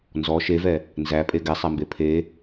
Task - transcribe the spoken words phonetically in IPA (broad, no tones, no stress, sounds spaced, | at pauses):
n z ɔ ʃ e v ɛ | n z æ pʼ e ɡ ɛ sˤ æ m b e pʰ e